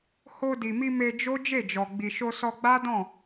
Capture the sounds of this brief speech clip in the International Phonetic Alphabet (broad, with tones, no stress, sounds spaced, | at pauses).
h o˧ d i˨ m i˧ m e˧ d͡ʒ o˦ d͡ʒ e˦˨ d͡ʒ ɔ˨ ɡ͡b i˨ ʃ o˧ s ɔ˧ ɡ͡b a˦ d ɔ̃˦˨